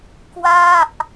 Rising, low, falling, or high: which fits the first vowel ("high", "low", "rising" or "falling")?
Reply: falling